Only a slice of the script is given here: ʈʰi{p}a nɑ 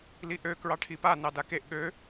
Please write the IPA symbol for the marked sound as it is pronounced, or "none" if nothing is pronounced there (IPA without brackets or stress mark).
p